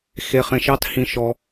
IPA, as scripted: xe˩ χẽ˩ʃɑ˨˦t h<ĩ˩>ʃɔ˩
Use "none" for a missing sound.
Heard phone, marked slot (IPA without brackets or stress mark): ĩ˩